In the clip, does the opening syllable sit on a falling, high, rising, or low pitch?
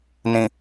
low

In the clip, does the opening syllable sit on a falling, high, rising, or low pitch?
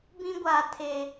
high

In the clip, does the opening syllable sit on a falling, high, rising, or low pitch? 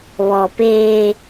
low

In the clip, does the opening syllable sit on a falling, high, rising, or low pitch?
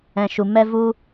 low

